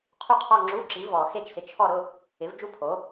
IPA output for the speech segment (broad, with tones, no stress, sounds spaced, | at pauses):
qʰ u˥˩ qʰ ɔ˥˧ ŋ͡ǁ u˧˥˧ ǁ i˨˥ v ɔ˨ x e˥˩ t͡ʃ s ɪ˨˥ t͡ʃʰ ɔ˥˧ ɾ ʊ˧˥˧ | ɪ˨˥ v d͡ʒ u˥˧ pʰ o˨˥